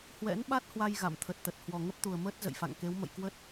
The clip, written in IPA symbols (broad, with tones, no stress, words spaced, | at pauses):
hwɛ̰˧˥nɓa˦˥t̚hwa˧j ɣa̰˧˨mt̪ʰə˨˩t̚t̪ə˨˩t̚ hwɔ˨˩ŋə˦˥p̚t̪u˨˩ə̯məː˦˥t̚ zə̰˧˨jfa̰˧˨ŋke˨˦w mə̰˧˨jkwə˦˥t̚